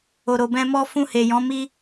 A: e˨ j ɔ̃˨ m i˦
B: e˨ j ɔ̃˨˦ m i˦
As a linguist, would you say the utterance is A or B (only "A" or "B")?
B